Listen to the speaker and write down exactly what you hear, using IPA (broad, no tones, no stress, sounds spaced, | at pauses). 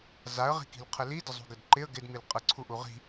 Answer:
z a ə̯ ʁ i̤ k i̤ l qʰ ə l i d ə zˤ ṳ ɡ ə d ǃ ɪ ə̯ ɡ ɪ d m i l qʼ ə ǀʰ u ʔ u ʁ i̤